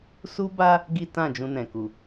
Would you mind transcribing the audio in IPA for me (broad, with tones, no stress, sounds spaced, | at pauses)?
s u˦ b a˦ | ɡ i˦ t ã˦˨ d͡ʒ ũ˧ n ɛ̃˨ k u˨